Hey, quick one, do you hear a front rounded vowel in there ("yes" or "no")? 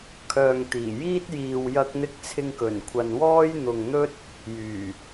yes